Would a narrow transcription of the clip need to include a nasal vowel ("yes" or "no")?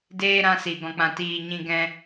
yes